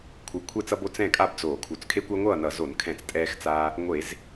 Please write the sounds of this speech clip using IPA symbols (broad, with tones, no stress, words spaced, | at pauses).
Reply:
kʷʰɯ˨˩kʷʰɛ˥˨t͡sʌ˦bo˦ t͡sɛ̃˥˨kʼa˥˨bd͡zoː˧˩˧ kʰu˨˩t͡skʰe˦kʷa˦ŋʷʌː˥˨ nʌ˧˩˧zo˧˩˧nkʰɛ̃˧˩˧t͡s tʼɛː˦xt͡saː˦ | ŋʷe˧˩˧z